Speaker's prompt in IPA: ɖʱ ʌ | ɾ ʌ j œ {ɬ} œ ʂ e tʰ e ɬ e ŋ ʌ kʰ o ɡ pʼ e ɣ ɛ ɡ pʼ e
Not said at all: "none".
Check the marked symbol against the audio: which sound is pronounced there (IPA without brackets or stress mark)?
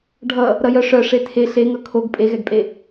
ʂ